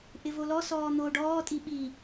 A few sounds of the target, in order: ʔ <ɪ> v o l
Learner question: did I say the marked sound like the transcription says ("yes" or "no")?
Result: yes